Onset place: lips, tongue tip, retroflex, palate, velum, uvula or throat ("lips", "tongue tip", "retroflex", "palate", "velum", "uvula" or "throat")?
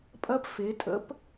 lips